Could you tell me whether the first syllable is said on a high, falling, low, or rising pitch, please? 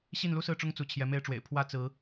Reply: falling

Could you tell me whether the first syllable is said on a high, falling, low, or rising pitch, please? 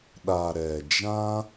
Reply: low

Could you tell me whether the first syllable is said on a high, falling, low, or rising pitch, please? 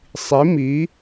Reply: rising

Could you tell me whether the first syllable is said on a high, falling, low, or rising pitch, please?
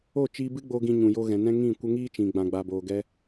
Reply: falling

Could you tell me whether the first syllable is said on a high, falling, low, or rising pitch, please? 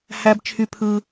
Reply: high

